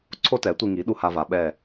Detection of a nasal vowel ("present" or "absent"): absent